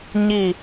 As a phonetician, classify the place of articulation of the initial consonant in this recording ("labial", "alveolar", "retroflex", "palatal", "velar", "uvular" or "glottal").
palatal